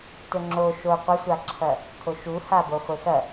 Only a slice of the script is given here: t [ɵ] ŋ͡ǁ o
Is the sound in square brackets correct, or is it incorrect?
correct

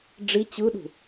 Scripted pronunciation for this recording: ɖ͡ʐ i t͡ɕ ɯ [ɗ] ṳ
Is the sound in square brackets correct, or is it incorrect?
correct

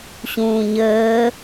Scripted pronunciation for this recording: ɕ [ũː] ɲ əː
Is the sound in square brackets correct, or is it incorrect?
correct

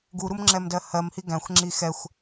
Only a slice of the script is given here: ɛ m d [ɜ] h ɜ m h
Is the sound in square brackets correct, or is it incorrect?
correct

